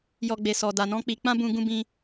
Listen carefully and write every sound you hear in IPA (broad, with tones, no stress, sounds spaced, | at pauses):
j ɔ˨ ɡ͡b e˨ s ɔ˨ d a˨ n ɔ̃˧ k͡p i˧ k͡p ã˦ b ũ˧ ɡ ũ˦ b ĩ˦